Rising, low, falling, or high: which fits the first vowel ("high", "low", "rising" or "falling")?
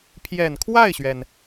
low